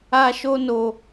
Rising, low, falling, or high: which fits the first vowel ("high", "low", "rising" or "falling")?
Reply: high